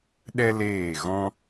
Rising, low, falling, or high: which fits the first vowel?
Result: high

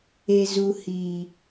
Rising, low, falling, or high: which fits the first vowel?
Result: low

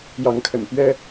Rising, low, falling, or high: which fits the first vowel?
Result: rising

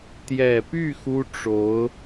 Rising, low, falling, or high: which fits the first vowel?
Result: low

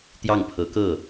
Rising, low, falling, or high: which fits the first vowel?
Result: falling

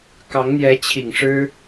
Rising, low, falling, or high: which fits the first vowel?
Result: rising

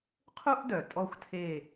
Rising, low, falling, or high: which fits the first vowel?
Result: high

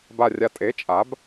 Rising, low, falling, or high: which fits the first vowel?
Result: low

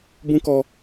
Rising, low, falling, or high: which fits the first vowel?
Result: high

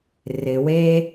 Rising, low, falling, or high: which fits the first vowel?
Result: low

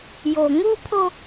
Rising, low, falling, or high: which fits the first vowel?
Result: low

